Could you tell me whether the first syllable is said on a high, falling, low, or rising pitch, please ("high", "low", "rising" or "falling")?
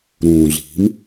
low